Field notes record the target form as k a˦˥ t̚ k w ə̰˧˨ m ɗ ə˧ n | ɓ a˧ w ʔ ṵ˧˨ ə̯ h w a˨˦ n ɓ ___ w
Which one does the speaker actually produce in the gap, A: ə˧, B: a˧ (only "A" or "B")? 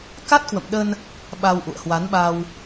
B